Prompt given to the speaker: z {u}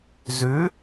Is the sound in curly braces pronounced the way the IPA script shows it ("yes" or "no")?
no